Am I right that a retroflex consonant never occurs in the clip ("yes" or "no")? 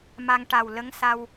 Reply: no